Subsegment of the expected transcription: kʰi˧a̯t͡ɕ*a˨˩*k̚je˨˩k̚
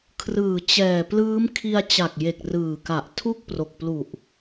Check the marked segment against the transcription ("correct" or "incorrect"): correct